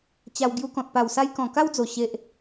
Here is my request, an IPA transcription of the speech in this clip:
t͡ɕ a˧ w ɡ j u˧ k ɔ̃˨ t̚ p a˨˩ w s a˧ j k ɔ̃˨˩ k a˦ w d͡z o˨˩ ɕ e˨ ʔ

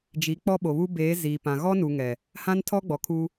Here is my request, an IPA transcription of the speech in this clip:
d͡ʒ i˨˦ k͡p ɔ˦ ɓ o˨ β u˦ b eː˨˦ z iː˨ p ã˨ ɣ ɔ˦ n u˨ ŋ ɛ˨ | h ã˦ n tʰ ɔ˦ ɡ͡b ɔ˨ kʰ u˦

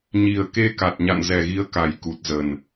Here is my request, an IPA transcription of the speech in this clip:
ɲ i˨˩ ə̯ k e˧ k a˨˩ t̚ ɲ a̰˧˨ n z ɛ˨˩ ɣ i˨˦ ə̯ k a˨˩ j k u˨˩ t̚ z ə˨˩ n

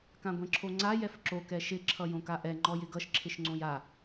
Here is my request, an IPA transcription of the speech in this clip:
k ã ɡʷ ɛ̃ ǁʰ o ŋ͡ǀ a j ɛ f ǁ o k ɛ ʃ ɪ ǁʰ ʌ j õ k a ʔ ɛ ŋ͡ǃ ɔ j ɪ ɡ ʌ ʃ ǁʰ ɪ ʃ ŋ͡ǀ õ j a

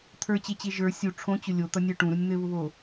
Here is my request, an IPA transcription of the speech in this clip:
t̪ʰ ə˞ t͡ɕ e t͡ɕ e ʒ ə˞ sʲ u ʈ͡ʂʰ õ t͡ɕ ʊ lʲ o t̪ ʌ nʲ ə˞ ʈ ũ ɾ u nʲ n̪ ɘ β ʊ β o

